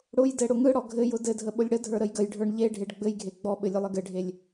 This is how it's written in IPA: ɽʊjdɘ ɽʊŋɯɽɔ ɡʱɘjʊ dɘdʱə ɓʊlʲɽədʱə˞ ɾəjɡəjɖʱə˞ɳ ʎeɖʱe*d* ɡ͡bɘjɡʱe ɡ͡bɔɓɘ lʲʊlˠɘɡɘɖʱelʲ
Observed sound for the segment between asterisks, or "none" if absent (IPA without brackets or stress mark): ɖ